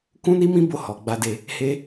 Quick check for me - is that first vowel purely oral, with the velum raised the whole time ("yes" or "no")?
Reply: no